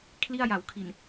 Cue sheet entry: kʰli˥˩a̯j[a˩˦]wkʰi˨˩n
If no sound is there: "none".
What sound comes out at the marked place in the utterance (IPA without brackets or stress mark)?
a˩˦